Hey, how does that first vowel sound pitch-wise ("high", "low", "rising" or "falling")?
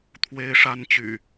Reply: high